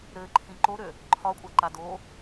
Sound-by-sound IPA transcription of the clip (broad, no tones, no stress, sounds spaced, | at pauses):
ɾ ɘ ǃʰ ĩ ǃ o ɾ ø | ǃʰ ɒ kʷʼ a ǃ a d o